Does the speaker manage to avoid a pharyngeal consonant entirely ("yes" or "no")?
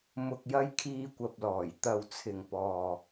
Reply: yes